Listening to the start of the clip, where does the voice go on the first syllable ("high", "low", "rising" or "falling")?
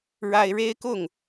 high